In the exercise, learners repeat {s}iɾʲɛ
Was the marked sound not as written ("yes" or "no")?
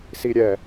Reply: no